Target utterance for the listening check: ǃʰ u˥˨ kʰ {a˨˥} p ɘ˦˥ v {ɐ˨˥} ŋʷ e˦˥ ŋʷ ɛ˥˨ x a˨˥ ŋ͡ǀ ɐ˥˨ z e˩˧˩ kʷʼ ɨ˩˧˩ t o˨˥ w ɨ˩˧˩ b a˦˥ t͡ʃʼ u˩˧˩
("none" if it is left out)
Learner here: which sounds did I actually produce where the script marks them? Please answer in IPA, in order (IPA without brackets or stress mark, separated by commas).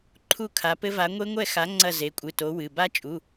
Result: a˨˥, a˨˥